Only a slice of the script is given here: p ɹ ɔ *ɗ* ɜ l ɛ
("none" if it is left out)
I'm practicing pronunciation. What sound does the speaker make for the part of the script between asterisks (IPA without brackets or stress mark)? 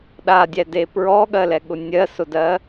ɠ